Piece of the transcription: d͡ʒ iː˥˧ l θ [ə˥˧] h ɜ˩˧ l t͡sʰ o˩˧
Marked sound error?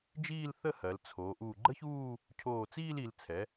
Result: no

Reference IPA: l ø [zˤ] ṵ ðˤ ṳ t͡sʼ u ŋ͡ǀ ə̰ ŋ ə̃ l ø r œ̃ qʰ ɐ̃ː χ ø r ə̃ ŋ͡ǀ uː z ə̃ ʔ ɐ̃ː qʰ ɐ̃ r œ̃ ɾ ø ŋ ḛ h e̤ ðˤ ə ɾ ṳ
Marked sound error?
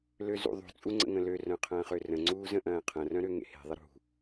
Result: yes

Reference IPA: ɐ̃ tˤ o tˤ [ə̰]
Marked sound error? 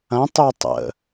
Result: no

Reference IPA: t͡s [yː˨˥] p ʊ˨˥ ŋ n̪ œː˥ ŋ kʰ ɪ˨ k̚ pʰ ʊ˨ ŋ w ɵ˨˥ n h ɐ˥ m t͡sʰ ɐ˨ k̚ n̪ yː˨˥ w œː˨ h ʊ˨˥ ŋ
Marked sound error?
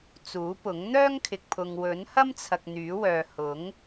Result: yes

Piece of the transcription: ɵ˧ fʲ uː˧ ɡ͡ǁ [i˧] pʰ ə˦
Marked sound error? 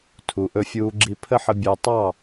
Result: no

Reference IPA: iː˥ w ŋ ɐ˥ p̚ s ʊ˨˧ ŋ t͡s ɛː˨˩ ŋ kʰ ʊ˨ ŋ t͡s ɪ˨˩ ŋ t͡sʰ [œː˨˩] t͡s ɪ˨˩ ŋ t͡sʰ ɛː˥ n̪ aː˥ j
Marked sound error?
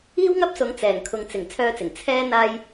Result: yes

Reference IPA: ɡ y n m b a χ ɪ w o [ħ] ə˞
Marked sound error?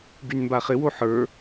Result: no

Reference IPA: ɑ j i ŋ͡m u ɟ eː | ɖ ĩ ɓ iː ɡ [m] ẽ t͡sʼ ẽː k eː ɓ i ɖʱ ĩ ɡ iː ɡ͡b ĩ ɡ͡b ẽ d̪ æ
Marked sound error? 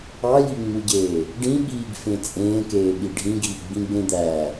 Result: yes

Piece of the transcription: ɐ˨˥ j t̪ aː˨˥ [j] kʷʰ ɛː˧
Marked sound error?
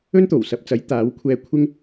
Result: yes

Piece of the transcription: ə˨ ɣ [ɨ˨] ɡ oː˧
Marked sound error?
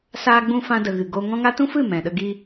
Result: no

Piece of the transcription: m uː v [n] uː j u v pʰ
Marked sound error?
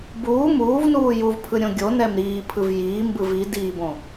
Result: no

